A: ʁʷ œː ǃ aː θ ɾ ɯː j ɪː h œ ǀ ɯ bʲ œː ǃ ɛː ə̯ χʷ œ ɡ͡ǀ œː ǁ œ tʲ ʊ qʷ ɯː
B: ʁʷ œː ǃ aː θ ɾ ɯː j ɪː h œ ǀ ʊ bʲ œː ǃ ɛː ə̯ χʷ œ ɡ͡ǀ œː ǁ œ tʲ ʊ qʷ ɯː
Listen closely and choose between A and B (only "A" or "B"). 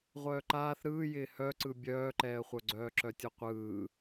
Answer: A